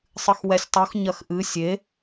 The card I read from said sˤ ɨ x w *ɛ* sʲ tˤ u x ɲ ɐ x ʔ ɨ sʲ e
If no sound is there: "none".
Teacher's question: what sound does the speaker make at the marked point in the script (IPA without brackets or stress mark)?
ɛ